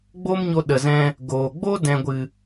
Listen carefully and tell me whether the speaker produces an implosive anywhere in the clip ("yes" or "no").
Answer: yes